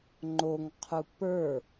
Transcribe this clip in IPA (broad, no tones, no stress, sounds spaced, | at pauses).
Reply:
ŋ͡ǃ o ŋ qʰ u p ə˞